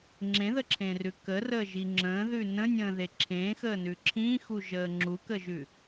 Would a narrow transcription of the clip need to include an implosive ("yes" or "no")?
no